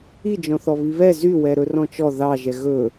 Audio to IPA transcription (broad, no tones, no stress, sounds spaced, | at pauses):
i d͡ʒ ɔ̃ θ ɔ β i β ɛ z y w ɛ ɾ ɵ r ɔ̃ t͡ʃ ɔ ð ɑ ʒ ɛ ɣ ɵ